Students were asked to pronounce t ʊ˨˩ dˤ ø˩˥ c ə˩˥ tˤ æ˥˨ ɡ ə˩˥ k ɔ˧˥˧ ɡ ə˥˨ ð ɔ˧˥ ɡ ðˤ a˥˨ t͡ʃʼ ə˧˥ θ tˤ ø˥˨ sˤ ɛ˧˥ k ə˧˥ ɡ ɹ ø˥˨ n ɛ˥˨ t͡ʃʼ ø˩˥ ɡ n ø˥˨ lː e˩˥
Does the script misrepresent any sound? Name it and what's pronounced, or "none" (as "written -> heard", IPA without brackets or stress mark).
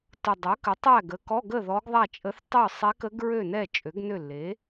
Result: c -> k